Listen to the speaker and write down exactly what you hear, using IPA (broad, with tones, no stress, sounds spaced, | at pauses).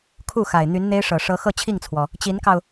kʰ u˥˩ x a˨˩ ɪ̯ n̪ y˧˥ n n̪ e˥ ɪ̯ ʂ ɤ˨˩ ʂ ɤ˧˥ x ɤ˥˧ t͡ɕʰ i˥˩ ŋ t͡sʰ w ɔ˩ | t͡ɕ i˧˥ n k ɑ˧ ʊ̯